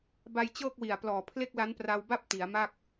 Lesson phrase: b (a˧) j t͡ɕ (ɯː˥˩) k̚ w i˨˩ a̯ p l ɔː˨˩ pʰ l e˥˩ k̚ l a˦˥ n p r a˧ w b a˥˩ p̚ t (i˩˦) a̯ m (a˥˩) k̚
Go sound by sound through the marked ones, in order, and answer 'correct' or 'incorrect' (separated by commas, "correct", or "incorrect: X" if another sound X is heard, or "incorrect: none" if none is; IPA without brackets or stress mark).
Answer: correct, incorrect: ɤː˥˩, correct, correct